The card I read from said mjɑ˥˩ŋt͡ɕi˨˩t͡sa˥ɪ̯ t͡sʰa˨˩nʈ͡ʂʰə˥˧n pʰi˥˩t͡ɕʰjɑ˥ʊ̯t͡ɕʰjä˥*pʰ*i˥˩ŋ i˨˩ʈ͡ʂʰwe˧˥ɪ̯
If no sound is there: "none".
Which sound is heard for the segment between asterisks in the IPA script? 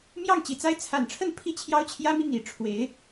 m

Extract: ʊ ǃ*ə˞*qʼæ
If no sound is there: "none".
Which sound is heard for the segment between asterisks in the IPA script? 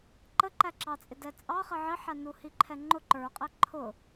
ə˞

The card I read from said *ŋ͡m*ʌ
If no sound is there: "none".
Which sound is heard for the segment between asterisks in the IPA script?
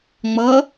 ŋ͡m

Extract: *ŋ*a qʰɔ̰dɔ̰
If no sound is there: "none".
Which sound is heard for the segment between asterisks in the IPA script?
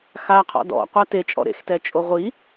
x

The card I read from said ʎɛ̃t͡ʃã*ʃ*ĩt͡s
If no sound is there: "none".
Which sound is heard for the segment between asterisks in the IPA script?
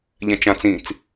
t͡s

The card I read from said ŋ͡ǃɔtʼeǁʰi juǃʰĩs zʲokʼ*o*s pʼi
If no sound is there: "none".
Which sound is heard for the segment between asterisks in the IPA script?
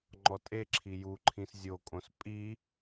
õ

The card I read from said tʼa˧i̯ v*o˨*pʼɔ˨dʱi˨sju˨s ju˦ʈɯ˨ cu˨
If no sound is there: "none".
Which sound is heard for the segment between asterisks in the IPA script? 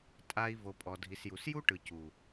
o˨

